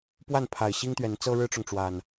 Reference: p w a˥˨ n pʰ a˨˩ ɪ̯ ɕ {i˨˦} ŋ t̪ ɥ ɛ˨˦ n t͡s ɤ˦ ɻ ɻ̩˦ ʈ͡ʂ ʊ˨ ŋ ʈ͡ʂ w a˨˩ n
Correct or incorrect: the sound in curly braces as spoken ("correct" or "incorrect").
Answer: incorrect